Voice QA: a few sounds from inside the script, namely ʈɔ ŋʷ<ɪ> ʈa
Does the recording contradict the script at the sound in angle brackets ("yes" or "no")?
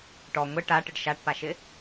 no